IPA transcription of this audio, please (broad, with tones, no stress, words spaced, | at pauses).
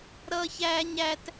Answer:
ɾʌː˦çæː˦ɲæ˦t